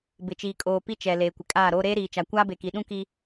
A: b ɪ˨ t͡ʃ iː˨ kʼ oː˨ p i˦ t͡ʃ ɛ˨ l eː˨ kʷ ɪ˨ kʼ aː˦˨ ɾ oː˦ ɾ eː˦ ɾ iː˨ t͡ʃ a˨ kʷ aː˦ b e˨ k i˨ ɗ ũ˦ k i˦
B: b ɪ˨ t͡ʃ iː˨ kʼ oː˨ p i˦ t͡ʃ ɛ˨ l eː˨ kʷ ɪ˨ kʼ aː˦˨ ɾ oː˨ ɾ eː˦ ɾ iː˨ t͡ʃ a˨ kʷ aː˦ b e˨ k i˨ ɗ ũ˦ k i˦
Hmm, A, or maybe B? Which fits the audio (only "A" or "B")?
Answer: A